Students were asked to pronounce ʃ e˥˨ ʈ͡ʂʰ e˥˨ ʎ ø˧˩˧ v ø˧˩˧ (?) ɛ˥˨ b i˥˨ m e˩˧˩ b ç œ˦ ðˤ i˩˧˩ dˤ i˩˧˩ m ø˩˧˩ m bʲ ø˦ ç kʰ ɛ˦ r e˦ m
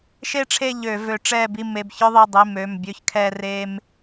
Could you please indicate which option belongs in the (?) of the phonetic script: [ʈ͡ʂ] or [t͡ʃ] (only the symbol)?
ʈ͡ʂ